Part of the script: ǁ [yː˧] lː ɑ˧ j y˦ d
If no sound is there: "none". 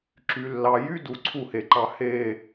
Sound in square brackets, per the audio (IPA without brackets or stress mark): y˧